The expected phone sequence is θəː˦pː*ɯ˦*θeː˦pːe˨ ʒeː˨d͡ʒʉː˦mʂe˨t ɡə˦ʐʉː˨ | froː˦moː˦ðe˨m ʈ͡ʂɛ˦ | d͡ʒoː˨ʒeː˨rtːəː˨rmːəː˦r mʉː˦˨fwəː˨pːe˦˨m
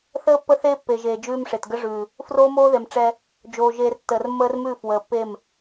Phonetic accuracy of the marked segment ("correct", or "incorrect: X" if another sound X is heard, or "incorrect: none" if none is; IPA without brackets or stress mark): incorrect: ə˦